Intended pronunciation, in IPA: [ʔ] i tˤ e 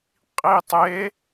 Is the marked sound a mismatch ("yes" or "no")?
yes